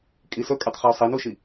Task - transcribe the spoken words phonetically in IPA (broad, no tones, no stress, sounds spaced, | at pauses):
kʼ i s ɵ kʼ ø tˤ χ ɛ o̯ sˤ i n u ʃ i